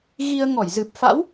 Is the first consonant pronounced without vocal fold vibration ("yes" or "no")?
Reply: no